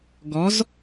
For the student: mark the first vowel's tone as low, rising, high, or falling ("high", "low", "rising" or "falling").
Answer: rising